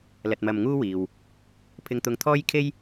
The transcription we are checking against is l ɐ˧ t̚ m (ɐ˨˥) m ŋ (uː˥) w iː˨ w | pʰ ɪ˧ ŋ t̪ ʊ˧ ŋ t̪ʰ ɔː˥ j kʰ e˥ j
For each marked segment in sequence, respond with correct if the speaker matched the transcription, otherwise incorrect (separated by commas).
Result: incorrect, correct